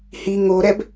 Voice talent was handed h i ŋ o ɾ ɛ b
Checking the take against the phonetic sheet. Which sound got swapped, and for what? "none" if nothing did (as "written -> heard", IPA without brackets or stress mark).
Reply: none